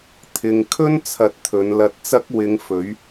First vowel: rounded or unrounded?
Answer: unrounded